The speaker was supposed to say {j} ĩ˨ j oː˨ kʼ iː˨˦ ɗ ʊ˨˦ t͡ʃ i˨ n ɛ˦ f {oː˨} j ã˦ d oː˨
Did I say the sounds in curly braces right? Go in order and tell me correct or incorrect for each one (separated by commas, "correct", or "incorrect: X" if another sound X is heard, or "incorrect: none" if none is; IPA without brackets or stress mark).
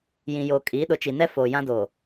correct, correct